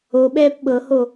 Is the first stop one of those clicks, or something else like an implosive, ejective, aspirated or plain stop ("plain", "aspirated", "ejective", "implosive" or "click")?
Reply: implosive